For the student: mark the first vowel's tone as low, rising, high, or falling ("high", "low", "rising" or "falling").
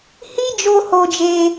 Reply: high